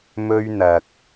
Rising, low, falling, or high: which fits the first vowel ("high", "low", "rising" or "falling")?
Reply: high